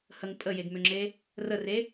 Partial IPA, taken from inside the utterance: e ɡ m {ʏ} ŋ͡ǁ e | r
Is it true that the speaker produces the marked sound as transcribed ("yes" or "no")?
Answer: yes